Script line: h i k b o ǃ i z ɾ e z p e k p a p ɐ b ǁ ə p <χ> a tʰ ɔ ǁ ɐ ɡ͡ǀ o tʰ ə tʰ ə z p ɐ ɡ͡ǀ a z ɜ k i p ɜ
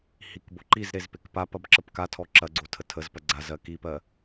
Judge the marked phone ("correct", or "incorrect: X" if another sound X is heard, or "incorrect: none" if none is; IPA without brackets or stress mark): incorrect: k